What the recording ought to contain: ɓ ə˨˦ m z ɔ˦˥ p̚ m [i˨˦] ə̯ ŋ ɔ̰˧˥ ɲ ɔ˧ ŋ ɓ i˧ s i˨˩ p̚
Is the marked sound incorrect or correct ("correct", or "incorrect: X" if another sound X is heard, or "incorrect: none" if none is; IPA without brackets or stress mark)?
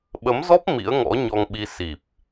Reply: incorrect: ḭ˧˥